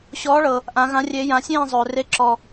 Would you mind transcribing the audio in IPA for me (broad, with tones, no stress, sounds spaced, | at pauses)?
ɕ ɔː˨˦ ɭ ɤ˨ | ʔ ã˨˦ ɣ ã˨˦ rʲ eː˨˦ j ã˨˦ sʲ ẽː˥˨ zˤ ɵː˨ r e˨˦ ǁ ɔː˨